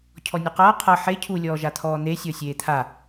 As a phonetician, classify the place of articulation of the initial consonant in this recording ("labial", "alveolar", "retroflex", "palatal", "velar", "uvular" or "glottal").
palatal